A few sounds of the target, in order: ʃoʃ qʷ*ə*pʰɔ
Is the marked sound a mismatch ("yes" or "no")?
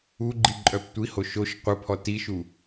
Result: no